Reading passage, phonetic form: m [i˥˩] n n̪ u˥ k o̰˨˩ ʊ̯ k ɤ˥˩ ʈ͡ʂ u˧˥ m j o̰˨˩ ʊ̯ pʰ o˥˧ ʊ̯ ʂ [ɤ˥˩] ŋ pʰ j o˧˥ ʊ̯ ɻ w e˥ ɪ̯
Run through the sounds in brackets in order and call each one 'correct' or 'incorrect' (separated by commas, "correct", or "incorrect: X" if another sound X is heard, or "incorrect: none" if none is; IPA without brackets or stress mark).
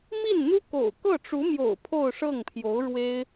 correct, correct